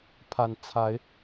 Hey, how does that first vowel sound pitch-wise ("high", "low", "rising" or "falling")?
low